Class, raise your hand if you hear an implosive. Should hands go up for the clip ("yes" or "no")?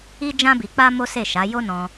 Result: no